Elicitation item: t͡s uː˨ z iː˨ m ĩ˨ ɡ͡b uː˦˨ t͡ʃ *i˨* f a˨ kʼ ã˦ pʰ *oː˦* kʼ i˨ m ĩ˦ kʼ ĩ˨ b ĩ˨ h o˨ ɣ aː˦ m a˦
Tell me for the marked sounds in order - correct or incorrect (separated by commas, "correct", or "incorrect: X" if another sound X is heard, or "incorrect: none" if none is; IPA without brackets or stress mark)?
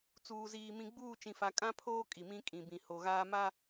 incorrect: ĩ˨, correct